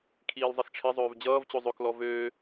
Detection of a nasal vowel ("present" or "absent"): absent